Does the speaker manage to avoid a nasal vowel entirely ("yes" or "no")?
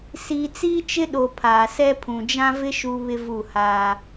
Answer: no